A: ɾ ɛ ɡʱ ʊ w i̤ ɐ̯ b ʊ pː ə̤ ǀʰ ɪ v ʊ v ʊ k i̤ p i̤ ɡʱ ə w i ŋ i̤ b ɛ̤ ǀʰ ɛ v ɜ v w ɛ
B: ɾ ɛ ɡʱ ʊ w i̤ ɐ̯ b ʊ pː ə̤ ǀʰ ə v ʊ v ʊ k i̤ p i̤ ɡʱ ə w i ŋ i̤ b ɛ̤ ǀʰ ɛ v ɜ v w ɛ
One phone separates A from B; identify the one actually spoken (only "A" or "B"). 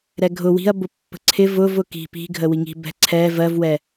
A